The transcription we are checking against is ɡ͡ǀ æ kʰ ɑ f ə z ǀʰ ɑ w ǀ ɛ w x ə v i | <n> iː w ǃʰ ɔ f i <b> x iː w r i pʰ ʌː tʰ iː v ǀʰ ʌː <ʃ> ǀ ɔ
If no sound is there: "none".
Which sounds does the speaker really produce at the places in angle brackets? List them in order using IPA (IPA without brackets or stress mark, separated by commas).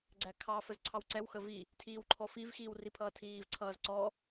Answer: tʰ, v, z